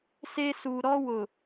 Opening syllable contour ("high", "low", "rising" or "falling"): high